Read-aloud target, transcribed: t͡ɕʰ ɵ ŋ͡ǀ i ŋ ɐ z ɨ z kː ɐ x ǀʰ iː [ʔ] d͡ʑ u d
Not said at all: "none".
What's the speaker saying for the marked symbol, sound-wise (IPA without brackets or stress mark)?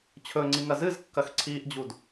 ʔ